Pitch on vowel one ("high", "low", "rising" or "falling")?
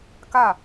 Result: falling